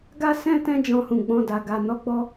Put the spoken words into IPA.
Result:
ɡ a˦ s ɛ̃˦ t ɛ̃˦ d͡ʒ ɔ̃˧ h ũ˨ ɡ͡b ɔ̃˧ d a˨ ɡ a˨ n ɔ˨˦ ɡ͡b ɔ˧

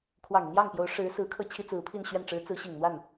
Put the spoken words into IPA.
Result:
kʰ w ɑ˨˩ ŋ i˦ n̪ j ɑ˥˩ ŋ p j o˧˥ ʊ̯ ʂ ɻ̩˧˥ s ɹ̩˧˥ kʰ ɤ˥˩ t͡ɕʰ i˥ t͡s ɹ̩˧˥ pʰ i˥˧ n ɕ ɥ ɛ˥˩ n ʈ͡ʂ ɻ̩˧˥ t͡s ɹ̩˧˥ ɕ i˨˩ ŋ n̪ w a˥˩ n

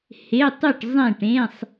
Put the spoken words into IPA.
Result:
h e˧˥˧ tˤ ʉ˥˨ ʈ zˤ ẽ˥˨ ʈ ẽ˧˥˧ sˤ

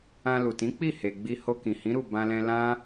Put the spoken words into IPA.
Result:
ã˧ l u˨ t ĩ˨˦ k͡p i˦˨ h e˨ ɡ͡b i˧ h o˧ k ĩ˨ h ĩ˨˦ ɾ u˦˨ b ã˧ l ɛ̃˧ l ã˦

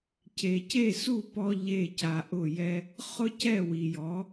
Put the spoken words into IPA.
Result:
c e˩ c e˥˩ s u˥˩ p ɔ˧ ʎ e˥˩ c a˧ ʔ ʊ˥˩ j ɛ˥ | χ ʊ˥ c ɛ˥˩ w i˩ j ɔ˩˥

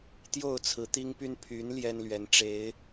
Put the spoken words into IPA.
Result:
t̪ j o˥˨ ʊ̯ t͡sʰ ɹ̩˨˦ t̪ i˦ ŋ p y˦ n pʰ y˨˦ n l j ɛ˦ n l ɥ ɛ˨˦ n ʈ͡ʂ e˨˦ ɪ̯

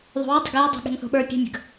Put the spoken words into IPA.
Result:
ðˤ o̤ w i dˤ ə̤ ɡ j ɛ dˤ o̤ ɠ e̤ ŋ θ o̤ ɓ ə˞ pʲ e̤ mʲ ə̤ ɡ

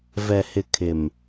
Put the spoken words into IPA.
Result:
v ɛ˨ h ɪ˨ kʰ ɪ˨ m

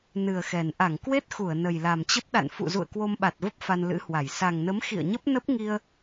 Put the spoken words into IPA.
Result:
n ɨ˨˩ ə̯ x ɛ˨˩ n ʔ a˧˩ ŋ k w e˦˥ t̚ x u˧˩ ə̯ n ə˨˩ j l a˨˩ m t͡ɕ ə˦˥ p̚ ɗ a̰˧˨ n f ṵ˧˨ z ṵ˧˨ ə̯ k w o˧ m ɓ a˨˩ t̚ v ə˦˥ p̚ f a˧ n l ɨ̰˧˥ h w a˧˩ j s a˨˩ ŋ n ə˨˦ m x ḭ˧˨ ə̯ ɲ ə˦˥ p̚ n ə˦˥ p̚ ŋ i˧ ə̯

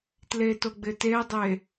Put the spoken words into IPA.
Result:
t l e t o ɡ͡b ɪ t e dˤ e

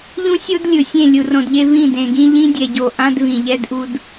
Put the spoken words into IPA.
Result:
ʎ ũ˦ sʲ o˦ d lʲ ɯ˨ sʲ ẽ˦˨ lʲ u˨ r õ˨ d ʎ e˦ v ĩ˦˨ d ẽ˨ ɡ ĩ˦ ʎ ĩ˦ dʲ ɛ˨ ɟ o˨ ʔ ã˦ d v ĩ˨ ʎ ɛ˦ d ʔ u˦ d

